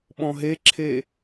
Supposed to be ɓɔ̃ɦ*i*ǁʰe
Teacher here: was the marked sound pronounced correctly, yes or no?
no